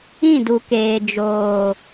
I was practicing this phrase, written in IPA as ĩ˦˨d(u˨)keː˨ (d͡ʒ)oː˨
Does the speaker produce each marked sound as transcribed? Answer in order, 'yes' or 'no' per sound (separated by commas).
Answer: yes, yes